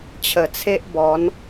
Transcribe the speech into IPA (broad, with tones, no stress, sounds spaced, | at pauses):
t͡ɕʰ ə˨˩ t͡sʰ e˦ ʔ b ɔ˨˦ n